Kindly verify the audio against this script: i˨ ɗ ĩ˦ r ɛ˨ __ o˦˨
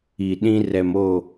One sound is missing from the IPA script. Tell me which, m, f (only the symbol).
m